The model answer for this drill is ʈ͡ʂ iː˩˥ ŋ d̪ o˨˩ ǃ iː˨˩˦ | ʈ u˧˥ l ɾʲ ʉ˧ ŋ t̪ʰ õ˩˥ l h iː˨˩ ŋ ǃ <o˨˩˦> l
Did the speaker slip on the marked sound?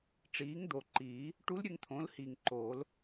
yes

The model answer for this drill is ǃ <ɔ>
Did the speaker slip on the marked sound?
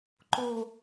yes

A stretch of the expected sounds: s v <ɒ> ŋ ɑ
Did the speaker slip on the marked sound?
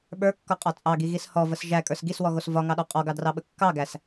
no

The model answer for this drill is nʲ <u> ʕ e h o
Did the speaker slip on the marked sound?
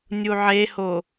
no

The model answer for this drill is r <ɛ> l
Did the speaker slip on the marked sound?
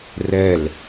no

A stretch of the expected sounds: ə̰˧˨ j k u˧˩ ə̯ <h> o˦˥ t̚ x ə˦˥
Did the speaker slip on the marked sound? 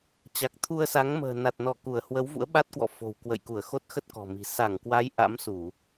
yes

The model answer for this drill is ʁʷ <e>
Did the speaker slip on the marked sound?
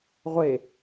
no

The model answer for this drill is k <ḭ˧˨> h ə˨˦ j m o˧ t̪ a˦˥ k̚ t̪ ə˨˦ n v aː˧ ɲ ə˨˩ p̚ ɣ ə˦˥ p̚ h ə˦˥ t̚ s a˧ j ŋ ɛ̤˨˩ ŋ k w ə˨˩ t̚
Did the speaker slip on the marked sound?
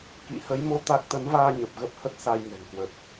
no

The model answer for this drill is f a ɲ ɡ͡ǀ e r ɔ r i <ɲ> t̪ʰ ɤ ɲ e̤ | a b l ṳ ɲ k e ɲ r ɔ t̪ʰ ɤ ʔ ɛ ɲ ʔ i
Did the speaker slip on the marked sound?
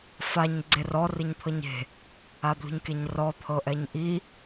no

